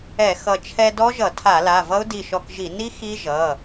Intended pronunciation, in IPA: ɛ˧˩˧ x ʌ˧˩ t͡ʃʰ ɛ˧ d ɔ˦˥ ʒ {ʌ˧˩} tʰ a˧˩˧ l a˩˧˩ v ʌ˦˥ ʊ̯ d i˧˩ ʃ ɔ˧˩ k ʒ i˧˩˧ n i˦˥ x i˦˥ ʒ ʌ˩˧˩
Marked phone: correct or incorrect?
incorrect: ʌ˧˩˧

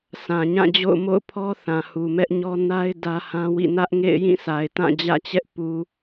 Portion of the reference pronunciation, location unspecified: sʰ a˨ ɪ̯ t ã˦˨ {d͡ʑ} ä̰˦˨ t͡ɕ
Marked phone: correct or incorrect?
correct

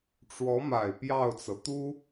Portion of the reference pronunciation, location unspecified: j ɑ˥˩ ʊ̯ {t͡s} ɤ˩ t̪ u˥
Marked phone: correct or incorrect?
correct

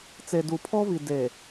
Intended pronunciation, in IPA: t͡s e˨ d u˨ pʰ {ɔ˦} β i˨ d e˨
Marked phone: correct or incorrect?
correct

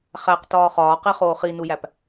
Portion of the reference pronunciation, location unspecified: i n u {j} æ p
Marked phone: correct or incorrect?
correct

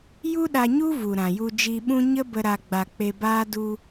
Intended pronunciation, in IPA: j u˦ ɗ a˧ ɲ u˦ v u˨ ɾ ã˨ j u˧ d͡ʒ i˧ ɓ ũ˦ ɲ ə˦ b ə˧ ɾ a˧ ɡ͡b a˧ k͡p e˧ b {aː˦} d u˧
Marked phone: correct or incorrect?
correct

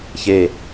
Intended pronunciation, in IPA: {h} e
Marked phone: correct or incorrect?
incorrect: ç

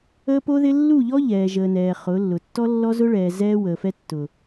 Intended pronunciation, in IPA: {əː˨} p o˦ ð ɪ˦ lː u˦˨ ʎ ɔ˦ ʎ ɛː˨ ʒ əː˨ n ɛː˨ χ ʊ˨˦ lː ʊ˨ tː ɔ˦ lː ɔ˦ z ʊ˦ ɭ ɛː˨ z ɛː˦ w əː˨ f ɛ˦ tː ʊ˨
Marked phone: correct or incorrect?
incorrect: əː˦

